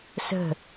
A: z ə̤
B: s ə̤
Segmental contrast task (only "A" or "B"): B